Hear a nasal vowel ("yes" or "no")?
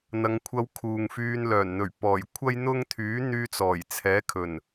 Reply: no